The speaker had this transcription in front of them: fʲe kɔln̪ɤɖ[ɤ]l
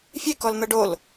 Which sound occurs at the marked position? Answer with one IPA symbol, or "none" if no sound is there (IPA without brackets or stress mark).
o